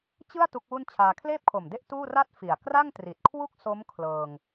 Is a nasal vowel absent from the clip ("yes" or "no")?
yes